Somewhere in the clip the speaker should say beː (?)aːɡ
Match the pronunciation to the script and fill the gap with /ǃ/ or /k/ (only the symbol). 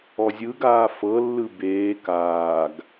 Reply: k